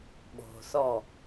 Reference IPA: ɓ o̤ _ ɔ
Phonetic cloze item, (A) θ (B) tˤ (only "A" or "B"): A